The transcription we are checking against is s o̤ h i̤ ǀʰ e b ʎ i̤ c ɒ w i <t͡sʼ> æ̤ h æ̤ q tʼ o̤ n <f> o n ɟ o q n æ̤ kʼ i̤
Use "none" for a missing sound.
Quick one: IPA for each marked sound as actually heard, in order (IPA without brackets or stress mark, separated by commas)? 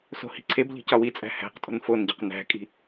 t͡sʼ, f